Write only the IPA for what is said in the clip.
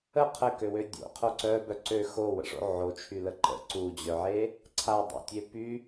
ə qʰ ə k ø w ø dʲ o̰ qʰ o ǀ œ b œ ǀ ø x o w ə̰ ʂ o̰ ʕ o t͡ʃʰ y l ə ǃ ə̰ ǀ u d͡ʑ œ ʕ e | ǀʰ a dˤ o̰ tʲ e p y

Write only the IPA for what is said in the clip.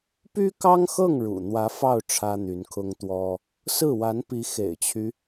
p y˥ k ɑ˥ ŋ x ɤ˥˩ ŋ ɻ ṵ˨˩ n̪ w ä˧˥ f ɑ˥˩ ʊ̯ ʈ͡ʂʰ ä˥ n̪ y˧˥ n kʰ ʊ˥ ŋ t̪ w ɔ˥ | s ɹ̩˥˩ w a˧˥ n p i˧˥ x ḛ˨˩ ɪ̯ t͡ɕʰ y˦

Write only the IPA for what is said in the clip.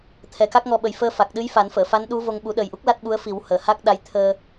t̪ʰ ɛ˨˩ k a˦˥ k̚ ŋ ɔ˧ ɓ ə˨˩ j f əː˧ f a˨˩ k̚ ɗ ɨ˧˥ j f a˨˩˦ n f əː˨˩˨ f a˧˥ n ɗ u˧˥ v o˧ ŋ ɓ u˨˩˦ ɗ ə˨˩ j ʔ u˦˥ k̚ l a˦˥ t̚ ɓ u˧˥ ə̯ f i˨˩˦ w h əː˨˩ h a˦˥ k̚ ɗ a˧˥ j t̪ʰ əː˧

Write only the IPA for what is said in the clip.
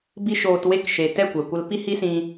b i˦ ʃ oː˧ t w e˦ k ʃ e˨ t ɛ˦˨ kʷ ɛ˨ kʷ ə˧ l p i˦ h i˦ s ĩ˧

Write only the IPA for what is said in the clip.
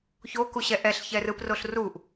ç o k u ɕ ɛ ʔ ɛ ɬ ç ɛ r ɯ p r o ɬ r u ʔ

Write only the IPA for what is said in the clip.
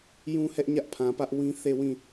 j ũ˦ h ɛ˦ ʔ ɲ ä˦ ʔ pʰ ã˨ p ä˦ ʔ w ĩ˦ θ e˦˨ w ĩ˦˨

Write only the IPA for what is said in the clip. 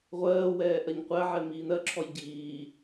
ʁʷ ɜː w ɛː ʔ ɜ ɲ qʷ æ ʕ ɛ m iː n ɜ ǁʰ ɔ j ɟ iː

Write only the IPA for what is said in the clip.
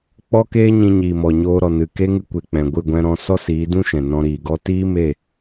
k͡p ɔ˦ k eː˦ ɲ ĩ˧ ɲ iː˨ m ɔ˨ ɲ oː˧ ɾ ɔ˨ n ɨ˨ k e˦ ŋ ɨ˧ kʷ e˨ k͡p ɛ̃˨ ɡʷ ɨ˦˨ ɡʷ ɛ̃˧ ɾ ɔ̃˧ s ɔ˦ s iː˨˦ d ũ˦ ʃ ɛ̃˨ n ɔ̃˧ ɾ iː˨ ɡ ɔ˦ t iː˦ m e˦˨

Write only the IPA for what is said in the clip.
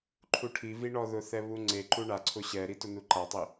ǃʰ u ʈʰ i v i ɳ ɔ ð ʊ θ ɛ β u ŋ͡ǀ e ǃ u ɳ a ǀʰ ʊ ɕ ɛ ɾ i t ʊ n u ǃ a tˤ i

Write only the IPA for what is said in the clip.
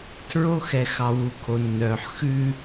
tʰ ɹ o˦ x ɛ˨ x ɑ˨ w u˨ kʰ o˨ nː œː˨ ħ x ʉ˦

